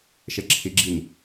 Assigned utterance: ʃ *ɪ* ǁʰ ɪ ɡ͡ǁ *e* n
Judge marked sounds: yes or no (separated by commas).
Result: no, no